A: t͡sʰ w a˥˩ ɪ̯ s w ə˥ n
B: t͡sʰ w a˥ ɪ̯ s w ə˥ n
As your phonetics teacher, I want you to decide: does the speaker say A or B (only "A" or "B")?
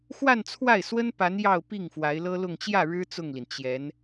A